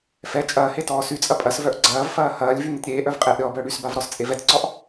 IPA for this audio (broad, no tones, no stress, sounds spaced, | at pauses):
f ɛ t͡ʃʼ ɐː h e t ɔː s y t͡sʼ ɐ pʼ ɐ s v œ ʔ ɡ͡ǀ ɐː v f ɐː h ɐː lʲ v y n ɪ t ɾʲ eː ʔ œ v qʼ eː ʔ ɾʲ ɔː b œː ɽ y s b a v ɾ ɔ s t͡sʼ e v ɛ t ǀ ɔ ʔ